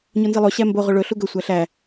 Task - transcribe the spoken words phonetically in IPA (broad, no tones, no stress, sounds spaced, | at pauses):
ɲ o n z i lˠ o ɕ æ m b o ʁ ɵ ɭ ɵ ɬ u ɡ ɵ sʷ æ ɬ æ